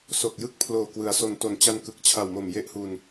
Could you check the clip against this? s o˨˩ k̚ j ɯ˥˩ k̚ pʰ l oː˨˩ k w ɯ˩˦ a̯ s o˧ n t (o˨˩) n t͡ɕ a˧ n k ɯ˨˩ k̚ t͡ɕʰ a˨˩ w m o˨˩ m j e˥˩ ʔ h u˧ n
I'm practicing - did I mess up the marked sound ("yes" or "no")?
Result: no